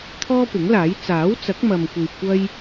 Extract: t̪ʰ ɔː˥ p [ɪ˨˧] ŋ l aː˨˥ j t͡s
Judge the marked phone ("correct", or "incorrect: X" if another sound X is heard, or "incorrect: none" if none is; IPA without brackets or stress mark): incorrect: ɪ˨˥